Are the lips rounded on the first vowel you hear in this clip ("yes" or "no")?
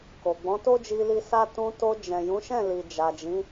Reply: yes